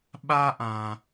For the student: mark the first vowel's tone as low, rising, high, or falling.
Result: high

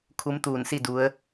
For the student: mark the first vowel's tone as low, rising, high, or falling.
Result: rising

